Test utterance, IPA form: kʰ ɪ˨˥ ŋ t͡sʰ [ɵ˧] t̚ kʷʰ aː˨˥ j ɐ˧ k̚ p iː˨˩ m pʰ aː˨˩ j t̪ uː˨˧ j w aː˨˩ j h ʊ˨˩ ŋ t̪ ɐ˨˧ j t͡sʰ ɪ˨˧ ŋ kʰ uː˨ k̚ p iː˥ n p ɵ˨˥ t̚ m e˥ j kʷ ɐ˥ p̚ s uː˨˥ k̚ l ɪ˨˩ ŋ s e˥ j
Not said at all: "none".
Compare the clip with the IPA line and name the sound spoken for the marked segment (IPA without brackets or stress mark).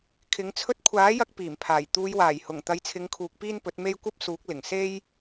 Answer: ɵ˧